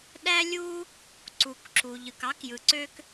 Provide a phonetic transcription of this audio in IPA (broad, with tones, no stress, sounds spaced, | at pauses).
ɗ æ˥ lʲ u˥ | ǀ u˩ k ǁ u˩ ʎ ɯ˩ k ɑ˥ k j ɯ˩ ǀ ø˥ k